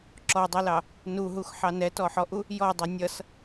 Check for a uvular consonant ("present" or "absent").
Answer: absent